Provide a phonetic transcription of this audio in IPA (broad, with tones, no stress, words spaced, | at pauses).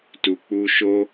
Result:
tu˧k͡pu˦ ʃo˦